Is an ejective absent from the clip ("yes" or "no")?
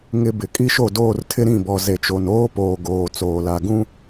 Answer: no